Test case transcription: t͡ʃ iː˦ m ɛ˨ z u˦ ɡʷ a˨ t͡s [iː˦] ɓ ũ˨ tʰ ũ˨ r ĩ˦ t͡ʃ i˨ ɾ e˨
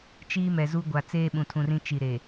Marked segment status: incorrect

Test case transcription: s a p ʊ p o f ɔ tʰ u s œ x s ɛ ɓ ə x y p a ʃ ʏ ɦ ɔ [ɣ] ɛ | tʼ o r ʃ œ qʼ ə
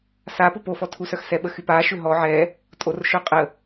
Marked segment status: incorrect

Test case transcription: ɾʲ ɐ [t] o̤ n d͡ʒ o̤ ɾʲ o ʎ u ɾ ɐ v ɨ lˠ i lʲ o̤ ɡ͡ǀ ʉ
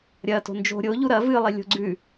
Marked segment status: correct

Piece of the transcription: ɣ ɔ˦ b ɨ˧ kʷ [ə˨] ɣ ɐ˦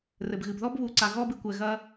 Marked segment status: incorrect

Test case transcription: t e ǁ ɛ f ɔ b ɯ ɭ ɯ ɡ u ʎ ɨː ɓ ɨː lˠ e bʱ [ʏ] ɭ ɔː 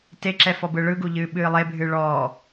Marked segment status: incorrect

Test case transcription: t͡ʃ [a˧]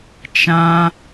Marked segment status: incorrect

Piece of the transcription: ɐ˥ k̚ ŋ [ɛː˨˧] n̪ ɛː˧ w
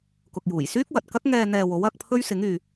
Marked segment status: incorrect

